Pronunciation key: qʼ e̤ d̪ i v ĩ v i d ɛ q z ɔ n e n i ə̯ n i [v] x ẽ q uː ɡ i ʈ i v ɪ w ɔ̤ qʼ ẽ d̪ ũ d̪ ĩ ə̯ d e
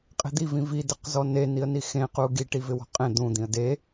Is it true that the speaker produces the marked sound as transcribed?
no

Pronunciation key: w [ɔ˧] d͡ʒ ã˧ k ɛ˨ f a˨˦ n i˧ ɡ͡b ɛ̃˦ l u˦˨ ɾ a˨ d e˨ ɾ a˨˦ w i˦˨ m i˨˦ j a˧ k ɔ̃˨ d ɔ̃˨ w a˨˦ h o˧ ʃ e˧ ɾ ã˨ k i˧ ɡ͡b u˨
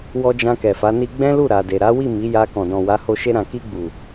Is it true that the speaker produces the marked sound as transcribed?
yes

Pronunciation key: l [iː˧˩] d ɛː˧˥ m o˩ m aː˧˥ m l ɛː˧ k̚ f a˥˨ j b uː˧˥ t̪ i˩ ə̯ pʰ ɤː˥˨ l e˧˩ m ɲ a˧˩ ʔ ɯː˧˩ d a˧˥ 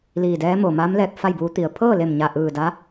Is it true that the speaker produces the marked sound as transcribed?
yes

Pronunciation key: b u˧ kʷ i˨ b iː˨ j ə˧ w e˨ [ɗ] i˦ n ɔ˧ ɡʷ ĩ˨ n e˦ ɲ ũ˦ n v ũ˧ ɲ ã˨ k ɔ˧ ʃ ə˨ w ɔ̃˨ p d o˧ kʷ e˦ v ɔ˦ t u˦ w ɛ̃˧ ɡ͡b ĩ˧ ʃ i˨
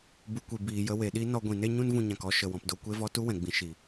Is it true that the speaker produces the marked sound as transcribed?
yes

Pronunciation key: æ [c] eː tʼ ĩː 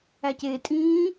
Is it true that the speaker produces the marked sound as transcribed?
yes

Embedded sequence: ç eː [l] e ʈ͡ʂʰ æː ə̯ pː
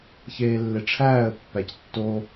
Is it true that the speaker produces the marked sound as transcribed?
no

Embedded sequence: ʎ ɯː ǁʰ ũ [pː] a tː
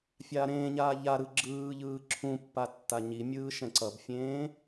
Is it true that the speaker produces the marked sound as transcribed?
yes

